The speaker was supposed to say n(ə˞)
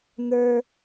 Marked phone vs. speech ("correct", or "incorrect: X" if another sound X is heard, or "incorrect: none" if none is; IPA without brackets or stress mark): correct